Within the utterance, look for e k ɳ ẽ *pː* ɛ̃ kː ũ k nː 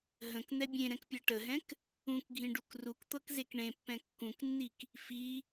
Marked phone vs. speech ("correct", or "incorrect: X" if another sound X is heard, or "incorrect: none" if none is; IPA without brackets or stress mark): correct